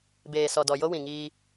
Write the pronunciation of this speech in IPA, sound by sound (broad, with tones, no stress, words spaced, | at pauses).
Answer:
beː˨sɔ˨dɔ˨ jo˦wĩ˨ŋiː˦